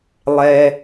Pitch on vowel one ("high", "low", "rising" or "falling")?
high